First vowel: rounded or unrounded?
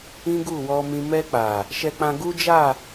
unrounded